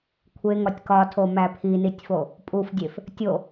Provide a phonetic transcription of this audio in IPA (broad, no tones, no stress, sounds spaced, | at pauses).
kʷʰ e ŋ ɒ tʲ k ɒ tʰ o m æ pʰ i n i tʲ f o | pʼ u f dʲ e f | tʲ o